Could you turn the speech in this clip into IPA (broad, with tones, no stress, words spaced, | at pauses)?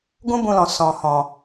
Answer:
ɡũ˦bũ˧lɔ̃˨ sɔ̃˨hɔ̃˨